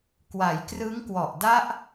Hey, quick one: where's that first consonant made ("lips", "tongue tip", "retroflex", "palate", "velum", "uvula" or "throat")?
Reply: velum